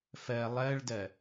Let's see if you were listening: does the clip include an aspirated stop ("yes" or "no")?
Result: no